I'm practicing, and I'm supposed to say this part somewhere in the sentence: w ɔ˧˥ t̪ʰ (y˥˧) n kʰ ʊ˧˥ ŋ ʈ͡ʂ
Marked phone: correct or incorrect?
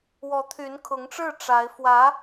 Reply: incorrect